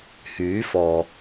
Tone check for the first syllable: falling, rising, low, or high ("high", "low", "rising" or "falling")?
rising